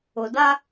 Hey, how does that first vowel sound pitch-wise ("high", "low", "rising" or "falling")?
low